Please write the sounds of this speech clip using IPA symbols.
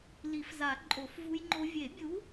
li˨˩˦fza˨˩˦ǃʼo˨˩˦f vu˦˥jŋ͡ǃo˦˥ vʲe˨˩˦bʲu˨˥

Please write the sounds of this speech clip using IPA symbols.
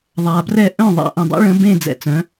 ðˤa˩brɛ˥˩ ʔœ̃˥˩ðˤa̰˧ ʔẽ˩dˤɛ̰˥ ɭə̃˧bẽ˥˩ d͡zɛ̰˥˩t͡sœ̃˩˥

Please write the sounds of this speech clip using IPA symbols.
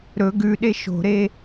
ɾɵɡ ʉɗe ʃo̤ɾe

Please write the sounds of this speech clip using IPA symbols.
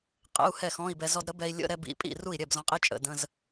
qʼə̰˧˥˧u̯hɛ˥˩xɔ̃˧˥˧i̯bɛ˧ zɔ˧dɾə˨˥bɛ˧i̯ lʲə̰˧˥˧ɾɛ˧bḭ˨˥pʼḭ˥˩ ru˥˩i̯ɾʲɛ˥˩b zɔ̃˨˥qʼi˧˥˧ t͡ʃʼə̰˧˥˧də̃˧˥˧z

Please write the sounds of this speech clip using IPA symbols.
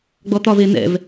ɡ͡bɔt̪ɒve n̪ɛ̰v

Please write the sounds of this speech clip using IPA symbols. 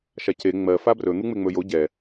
ʃace ŋ͡mɜ fabrɵ n̪uŋ͡meŋ͡mɵjo ɟɛ

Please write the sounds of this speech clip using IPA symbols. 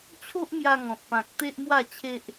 t͡ɕʰo˦ʔmja˧ŋɔ̃˨t̚ pã˨k̚ t̪e˦ʔmwa˥˧t͡ɕʰe˦ʔ

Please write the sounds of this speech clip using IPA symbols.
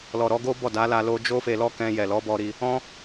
lɔ˨ɾɔ˧ɡo˦ bɔ˦˨da˨˦ la˧ lo˦ d͡ʒo˦fe˧lɔ˦kɛ̃˧ jɛ˨lɔ˨˦bɔ˧ɾi˧ | ɔ̃˦

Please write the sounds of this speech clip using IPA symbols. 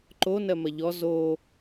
ǃo nɜmɐʎɔ zo

